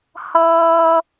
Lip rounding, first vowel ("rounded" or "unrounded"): unrounded